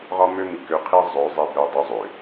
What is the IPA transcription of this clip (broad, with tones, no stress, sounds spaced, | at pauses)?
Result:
ʁ ɒ˦ m ø˦ m i˨ k ø˦ qʰ i˦ zˤ ø˨˦ zˤ e˦ b ø˦ dˤ ø˦ zˤ ø˨